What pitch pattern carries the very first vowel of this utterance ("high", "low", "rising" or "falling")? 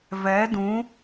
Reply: rising